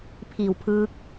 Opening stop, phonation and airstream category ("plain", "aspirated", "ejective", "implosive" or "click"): aspirated